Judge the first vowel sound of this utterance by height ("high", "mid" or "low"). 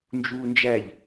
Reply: high